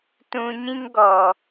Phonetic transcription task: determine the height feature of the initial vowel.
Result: high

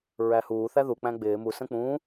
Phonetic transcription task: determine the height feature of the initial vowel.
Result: low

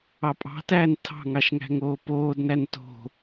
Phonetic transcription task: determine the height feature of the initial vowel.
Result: low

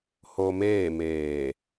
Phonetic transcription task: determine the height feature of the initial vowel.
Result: mid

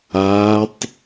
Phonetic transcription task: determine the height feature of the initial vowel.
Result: low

